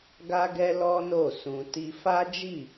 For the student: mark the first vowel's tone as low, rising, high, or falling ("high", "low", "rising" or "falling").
high